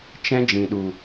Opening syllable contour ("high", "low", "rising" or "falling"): high